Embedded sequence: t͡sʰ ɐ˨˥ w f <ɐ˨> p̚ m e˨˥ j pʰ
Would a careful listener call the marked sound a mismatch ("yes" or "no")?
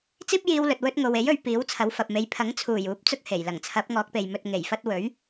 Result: no